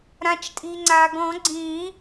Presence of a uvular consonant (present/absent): absent